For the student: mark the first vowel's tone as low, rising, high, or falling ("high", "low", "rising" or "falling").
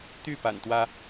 falling